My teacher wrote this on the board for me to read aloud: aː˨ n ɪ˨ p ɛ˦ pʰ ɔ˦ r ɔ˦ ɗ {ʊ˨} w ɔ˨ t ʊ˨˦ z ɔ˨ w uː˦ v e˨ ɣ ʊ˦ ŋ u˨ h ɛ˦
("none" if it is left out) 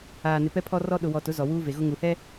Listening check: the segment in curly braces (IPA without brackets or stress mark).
ʊ˨